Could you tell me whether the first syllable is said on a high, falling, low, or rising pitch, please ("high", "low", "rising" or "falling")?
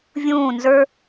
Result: falling